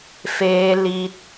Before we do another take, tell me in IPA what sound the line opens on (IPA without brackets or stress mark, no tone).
f